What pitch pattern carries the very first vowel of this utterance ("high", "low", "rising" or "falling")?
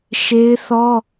high